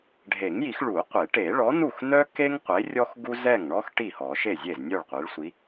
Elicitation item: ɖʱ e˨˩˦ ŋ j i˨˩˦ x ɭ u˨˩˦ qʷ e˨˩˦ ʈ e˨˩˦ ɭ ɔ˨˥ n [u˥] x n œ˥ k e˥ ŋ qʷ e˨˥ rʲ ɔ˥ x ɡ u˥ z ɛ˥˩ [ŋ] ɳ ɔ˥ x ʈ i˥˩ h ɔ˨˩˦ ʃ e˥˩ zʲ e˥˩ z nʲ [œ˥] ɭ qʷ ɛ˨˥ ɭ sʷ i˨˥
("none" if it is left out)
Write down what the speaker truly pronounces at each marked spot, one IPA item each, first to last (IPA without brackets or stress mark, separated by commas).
u˥˩, ŋ, œ˥˩